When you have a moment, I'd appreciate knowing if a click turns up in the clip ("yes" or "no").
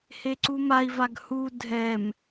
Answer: yes